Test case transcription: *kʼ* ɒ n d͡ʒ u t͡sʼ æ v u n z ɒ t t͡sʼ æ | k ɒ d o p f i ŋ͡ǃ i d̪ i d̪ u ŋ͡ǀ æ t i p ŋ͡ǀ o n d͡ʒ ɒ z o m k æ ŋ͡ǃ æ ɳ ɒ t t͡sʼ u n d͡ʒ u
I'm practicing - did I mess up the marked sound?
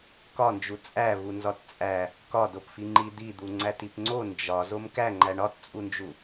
yes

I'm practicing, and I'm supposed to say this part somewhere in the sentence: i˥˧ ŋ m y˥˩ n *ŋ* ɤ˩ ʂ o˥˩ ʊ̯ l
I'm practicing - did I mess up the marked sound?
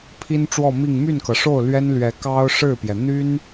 yes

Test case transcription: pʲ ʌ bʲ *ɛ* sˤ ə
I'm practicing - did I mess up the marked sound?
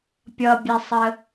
no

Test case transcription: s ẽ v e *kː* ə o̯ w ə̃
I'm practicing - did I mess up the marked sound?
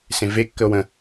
no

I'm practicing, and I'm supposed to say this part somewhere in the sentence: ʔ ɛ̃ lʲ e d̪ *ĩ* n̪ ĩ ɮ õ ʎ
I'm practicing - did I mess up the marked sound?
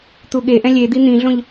yes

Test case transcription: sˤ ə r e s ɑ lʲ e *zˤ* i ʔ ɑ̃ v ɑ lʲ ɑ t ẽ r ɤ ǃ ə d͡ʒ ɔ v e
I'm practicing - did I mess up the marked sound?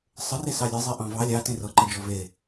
no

